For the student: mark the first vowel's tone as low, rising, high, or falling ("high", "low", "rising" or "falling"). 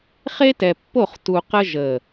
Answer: high